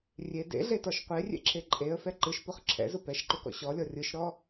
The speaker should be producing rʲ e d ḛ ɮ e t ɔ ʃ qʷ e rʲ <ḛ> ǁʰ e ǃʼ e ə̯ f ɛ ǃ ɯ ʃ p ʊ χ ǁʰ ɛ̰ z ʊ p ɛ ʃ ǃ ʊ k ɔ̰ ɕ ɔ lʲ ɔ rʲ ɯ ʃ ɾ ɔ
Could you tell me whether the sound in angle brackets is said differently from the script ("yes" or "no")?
no